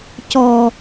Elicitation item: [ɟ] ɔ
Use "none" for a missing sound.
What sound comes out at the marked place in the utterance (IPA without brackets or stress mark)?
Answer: c